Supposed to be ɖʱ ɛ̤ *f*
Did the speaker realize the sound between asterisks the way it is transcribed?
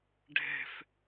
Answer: yes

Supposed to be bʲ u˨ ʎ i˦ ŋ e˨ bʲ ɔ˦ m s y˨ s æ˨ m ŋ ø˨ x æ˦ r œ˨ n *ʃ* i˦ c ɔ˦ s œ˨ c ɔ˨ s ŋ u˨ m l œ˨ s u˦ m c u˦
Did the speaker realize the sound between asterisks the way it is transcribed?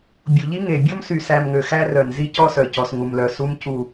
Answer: no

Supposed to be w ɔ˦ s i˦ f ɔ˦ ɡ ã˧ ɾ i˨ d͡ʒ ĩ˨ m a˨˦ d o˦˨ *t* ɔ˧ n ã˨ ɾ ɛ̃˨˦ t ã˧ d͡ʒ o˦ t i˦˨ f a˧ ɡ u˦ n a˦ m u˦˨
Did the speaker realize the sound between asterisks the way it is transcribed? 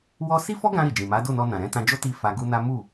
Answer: no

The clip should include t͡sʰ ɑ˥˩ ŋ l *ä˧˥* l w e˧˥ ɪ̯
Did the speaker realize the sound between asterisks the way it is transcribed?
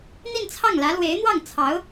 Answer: yes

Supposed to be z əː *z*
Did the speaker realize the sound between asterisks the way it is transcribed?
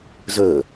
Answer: no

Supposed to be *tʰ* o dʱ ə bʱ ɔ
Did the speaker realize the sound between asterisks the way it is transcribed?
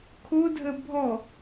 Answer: no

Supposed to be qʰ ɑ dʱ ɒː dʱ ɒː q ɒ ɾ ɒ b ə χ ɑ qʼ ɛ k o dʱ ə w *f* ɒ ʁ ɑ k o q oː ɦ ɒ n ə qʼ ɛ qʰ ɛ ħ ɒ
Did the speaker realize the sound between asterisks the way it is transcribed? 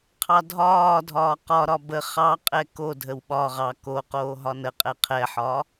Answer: no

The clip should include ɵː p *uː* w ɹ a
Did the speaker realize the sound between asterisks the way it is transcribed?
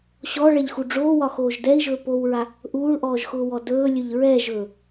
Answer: no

